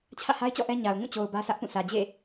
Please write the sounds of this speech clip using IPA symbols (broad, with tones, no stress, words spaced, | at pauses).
t͡ɕʰä̰˦˨ha˦ɪ̯t͡ɕɔ̰˦˨ ʔɛ˦ɲa˨ʊ̯ ŋũ˦˨t͡ɕo˨ʊ̯ bä˦sä˦ʔpũ˦˨ sʰä˨d͡ʑḛ˦˨